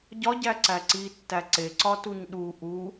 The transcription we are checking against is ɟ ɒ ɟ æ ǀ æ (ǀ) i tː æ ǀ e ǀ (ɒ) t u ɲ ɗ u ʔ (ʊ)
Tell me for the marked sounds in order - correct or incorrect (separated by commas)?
correct, correct, incorrect